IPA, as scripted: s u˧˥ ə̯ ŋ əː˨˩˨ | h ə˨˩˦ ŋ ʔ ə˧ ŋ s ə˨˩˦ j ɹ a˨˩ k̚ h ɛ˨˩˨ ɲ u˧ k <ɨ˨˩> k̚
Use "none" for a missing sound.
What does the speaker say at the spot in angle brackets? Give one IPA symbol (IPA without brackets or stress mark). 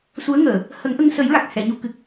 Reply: ɨ˨˩